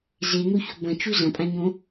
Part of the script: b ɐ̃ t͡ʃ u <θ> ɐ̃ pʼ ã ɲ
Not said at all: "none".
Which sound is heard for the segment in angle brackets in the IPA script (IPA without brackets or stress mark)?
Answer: z